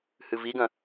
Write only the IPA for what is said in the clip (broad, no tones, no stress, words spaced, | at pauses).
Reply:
hɨviɡɐ̃